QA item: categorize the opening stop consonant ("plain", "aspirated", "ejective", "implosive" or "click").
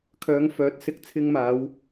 aspirated